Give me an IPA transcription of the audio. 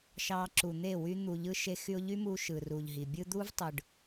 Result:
ʃ ɑː˧ ǁ u˨ n̪ e˦˨ w y˧ n̪ u˨ ʎ ɯ˧ ʃ e˧ x y˧ ʊ̯ ʎ y˦ m uː˧ ʃ ɯ˨ r u˨ ʎ ɦ i˨ bʲ ɯ˧ d̪ u˦ v tˤ ɯ˨ ɖ

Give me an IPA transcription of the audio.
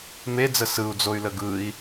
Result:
m e d͡z ə s ɯ u̯ d͡z o y̯ l ə ɡ ɯ i̯

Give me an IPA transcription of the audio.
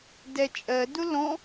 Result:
d ɛ t͡ʃʼ ɜ d ʊ l ɔ̃

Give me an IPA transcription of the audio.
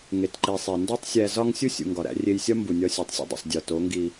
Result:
ŋ e˨ t ǃ i˨ sˤ e˨ n d ɒ˦ tˤ sʲ æ˧ z ɒ˦ ŋ sʲ u˦ sʲ ṵ˨ ŋ ɡ ɒ˨ ɾ æ̰˧ rʲ e˧ j sʲ ɒ˦ m b u˨ nʲ ɒ˧ sʲ u˨ tˤ sʲ ṵ˧ dˤ ṵ˨ sˤ dʲ ɒ˨ t o˨˦ ŋ ɡ i˧

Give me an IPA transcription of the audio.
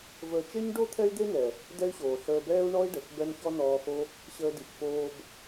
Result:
v əː˧ t͡ʃ e˦ ɲ ɖ o˦ t̪ʰ ɛ˦ y̯ d̪ e˦ n ɛ˨ | d ɛ˦ y̯ ɕ oː˨ ɬ əː˧ b ɛː˦ u̯ ɳ ɔ˦ i̯ ɖ ə˨ x b ɛ˦ n ç ɔ˦ n ɔː˧ x o˦ | ɕ əː˦ d i˧ x f oː˧ b

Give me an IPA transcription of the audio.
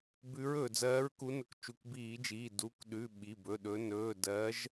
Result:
b ʉ˨˦ ɹ ɵː˩ d͡z ɜː˨˦ ɹ k u˨˦ n ɵ˨˦ k t͡ʃ u˩˧˩ k b iː˧˩˧ d͡ʒ iː˩˧˩ d u˩˧˩ k ɗ ʉ˩˧˩ ɓ i˩˧˩ b ɵ˩˧˩ ɗ ɵ˨˦ n ɵː˩˧˩ d ɜː˨˦ ʒ

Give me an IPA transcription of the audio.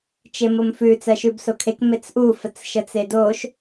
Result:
t͡ʃ e m o m f ʉ t͡s ɜ ʃ ʉ b s o kʰ e k m e t͡s ʔ u f ə t͡s ʃ ə t͡s e d o ʃ

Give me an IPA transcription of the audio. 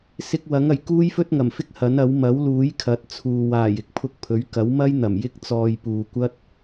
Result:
s ɪ˧ k̚ w ɐ˨˥ ŋ ɐ˨˩ j k uː˥ j f ɵ˥ t̚ ŋ ɐ˨˩ m f ɪ˥ k̚ h ɐ˨˥ n ɐ˨˥ w m ɐ˨˥ w l uː˨˥ j kʰ ɐ˨˥ t̚ t͡sʰ uː˨ w aː˨˩ j ɪ˨˥ k̚ pʰ ʊ˧ k̚ pʰ ɵ˨˥ ɥ k ɐ˨˥ w m ɐ˥ j n̪ ɐ˨˩ m j ɪ˧ k̚ t͡s ɔː˨ j p uː˨ kʷ ɐ˥ t̚

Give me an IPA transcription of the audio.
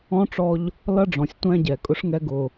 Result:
ɔ̃˦ ʈ͡ʂ ɔ˦ ʎ | l ʌ˦ ɖ͡ʐ ɔ̃˨ sʲ tʷ æ̃˦ ɟ ɛ˨ kʼ ʊ˦ ʂ ŋ ɛ˦ ɡ ʊ˨

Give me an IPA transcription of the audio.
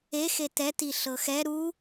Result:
e x e t ɛ t i ɬ ɤ x ɛ ɾ u

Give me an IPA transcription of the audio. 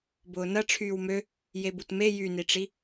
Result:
b ʊː n ɐ ʈ͡ʂʰ yː w m ø | j e b u t m e j y n i ʈ͡ʂ i

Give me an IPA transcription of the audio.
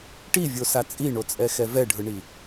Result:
ʈ i vʲ o s a t͡sʼ i ɳ o t͡sʼ ɛ x ɛ v ɛ ɖʱ ɯ ɳ i

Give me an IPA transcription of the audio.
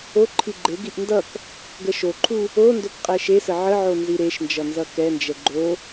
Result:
o ǃʰ i ɡ͡ǃ e ɡ i ʔ n d ʌ k | ɡ ə ʃ o ǃʰ u | o n d o k qʼ ɛ ʃ e s ə ʕ ə ʕ o n z i ɾ e ʃ n d͡ʒ ʌ n z ʌ k ɛ n d͡ʒ ɛ ɡ͡ǃ o

